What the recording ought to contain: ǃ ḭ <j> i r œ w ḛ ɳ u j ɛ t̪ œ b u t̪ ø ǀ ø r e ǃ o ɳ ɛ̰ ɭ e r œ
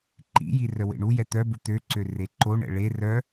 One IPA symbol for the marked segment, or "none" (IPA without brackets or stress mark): j